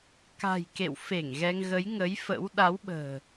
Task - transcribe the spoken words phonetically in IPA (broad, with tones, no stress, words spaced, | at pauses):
ka̤˨˩j kḛ˧˨wfe˧˩ŋ ɣɛ˧ŋɣə˨˦jŋə˨˦jfə̰˧˥w ɗa˨˦wɓə̤ː˨˩